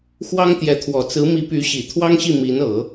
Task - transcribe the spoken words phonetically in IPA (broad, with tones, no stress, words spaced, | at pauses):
xwɑ˥ŋt̪jɛ˧˥t̪ʰwɔ˨˩ t͡sɹ̩˧˥mi˧˥ py˧˥ɕi˨˩ t̪ʰwɑ˥ŋɕi˥˩ mi˧˥nɤ˨˩˦